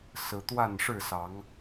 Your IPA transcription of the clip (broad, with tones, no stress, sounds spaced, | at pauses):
s ɹ̩˨˦ t̪ w a˥˨ n ʂ ɻ̩˥˨ s ɑ˨˦ ŋ